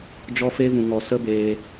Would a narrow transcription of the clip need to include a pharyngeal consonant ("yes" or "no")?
no